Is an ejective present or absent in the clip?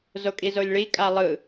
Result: present